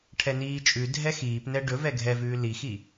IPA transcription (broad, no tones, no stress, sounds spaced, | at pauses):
ʈʰ ɛ n iː t͡ʃʼ ʉ dʱ ɛ x iː p n ɛ ɖ ɵ v ɛ ɡʱ ɛ v ʉː l i x i